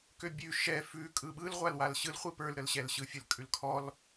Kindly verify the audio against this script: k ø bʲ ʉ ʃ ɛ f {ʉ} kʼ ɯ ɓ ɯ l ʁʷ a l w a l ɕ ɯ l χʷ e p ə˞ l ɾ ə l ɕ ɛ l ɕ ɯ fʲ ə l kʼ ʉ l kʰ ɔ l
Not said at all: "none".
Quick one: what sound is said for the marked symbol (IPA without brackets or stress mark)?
ʉ